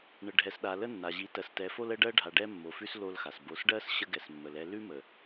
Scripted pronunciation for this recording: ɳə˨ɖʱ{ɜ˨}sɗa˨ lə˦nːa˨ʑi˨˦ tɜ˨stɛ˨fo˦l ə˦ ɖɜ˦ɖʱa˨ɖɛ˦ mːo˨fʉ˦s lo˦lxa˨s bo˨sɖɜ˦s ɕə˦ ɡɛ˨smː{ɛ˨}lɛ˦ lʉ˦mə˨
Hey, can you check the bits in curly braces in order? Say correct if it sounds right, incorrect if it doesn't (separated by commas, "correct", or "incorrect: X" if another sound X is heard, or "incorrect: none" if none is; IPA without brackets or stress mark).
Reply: incorrect: ɛ˨, incorrect: ə˨